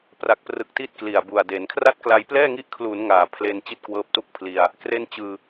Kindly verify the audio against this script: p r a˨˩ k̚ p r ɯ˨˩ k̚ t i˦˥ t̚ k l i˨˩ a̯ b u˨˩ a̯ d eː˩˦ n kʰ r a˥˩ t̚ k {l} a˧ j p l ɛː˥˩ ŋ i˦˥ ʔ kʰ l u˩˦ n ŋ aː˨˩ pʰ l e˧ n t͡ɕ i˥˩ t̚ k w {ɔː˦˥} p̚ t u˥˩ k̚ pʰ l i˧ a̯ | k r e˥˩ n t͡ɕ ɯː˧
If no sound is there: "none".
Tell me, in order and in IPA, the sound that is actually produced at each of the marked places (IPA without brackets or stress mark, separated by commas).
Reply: l, ɤː˦˥